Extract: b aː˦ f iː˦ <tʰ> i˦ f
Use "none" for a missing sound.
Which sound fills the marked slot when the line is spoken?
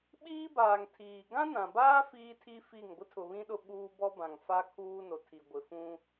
tʰ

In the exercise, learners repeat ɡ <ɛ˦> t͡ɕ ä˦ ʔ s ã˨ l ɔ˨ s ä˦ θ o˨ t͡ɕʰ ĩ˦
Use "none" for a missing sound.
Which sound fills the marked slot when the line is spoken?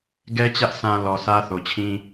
ɛ˦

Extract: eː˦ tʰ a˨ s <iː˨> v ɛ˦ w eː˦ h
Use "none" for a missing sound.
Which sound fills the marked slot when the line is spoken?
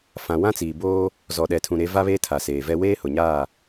eː˨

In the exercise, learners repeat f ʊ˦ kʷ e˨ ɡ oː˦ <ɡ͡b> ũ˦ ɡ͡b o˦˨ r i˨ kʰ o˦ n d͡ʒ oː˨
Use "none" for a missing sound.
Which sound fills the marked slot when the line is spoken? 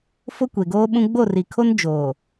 ɓ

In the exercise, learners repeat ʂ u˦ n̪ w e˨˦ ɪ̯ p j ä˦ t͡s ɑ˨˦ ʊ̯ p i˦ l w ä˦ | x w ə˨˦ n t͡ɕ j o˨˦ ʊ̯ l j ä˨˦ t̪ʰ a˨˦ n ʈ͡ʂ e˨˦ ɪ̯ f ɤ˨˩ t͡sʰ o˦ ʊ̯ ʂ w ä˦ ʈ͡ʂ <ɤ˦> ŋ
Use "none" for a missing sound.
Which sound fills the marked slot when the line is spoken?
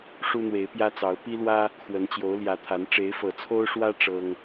ɤ˦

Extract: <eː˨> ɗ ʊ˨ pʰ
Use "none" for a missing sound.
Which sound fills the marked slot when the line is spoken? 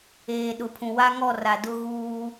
eː˨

